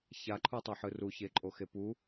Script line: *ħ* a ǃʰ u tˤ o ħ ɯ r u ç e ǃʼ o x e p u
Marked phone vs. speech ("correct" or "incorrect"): incorrect